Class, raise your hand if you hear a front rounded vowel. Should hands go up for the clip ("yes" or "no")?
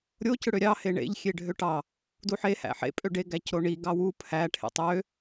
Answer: yes